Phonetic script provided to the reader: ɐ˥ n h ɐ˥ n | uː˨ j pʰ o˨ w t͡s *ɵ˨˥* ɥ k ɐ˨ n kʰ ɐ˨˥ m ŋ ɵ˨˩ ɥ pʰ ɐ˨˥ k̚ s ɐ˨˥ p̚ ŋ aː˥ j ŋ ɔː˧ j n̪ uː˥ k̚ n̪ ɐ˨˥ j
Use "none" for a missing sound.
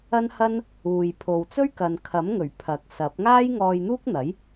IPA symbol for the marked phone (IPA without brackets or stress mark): ɵ˥